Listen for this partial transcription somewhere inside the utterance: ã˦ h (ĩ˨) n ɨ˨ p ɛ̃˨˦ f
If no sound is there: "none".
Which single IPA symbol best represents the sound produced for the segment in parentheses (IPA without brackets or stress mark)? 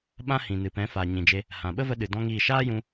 ĩ˨